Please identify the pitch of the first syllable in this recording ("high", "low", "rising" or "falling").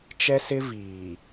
high